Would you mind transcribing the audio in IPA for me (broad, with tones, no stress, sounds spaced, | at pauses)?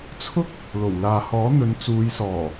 t͡sʰ ʊ˥ k̚ | l o˨˩ w l aː˨ h ɔː˨˥ n̪ ɵ˨˧ n t͡s uː˨˧ j s ɔː˨˩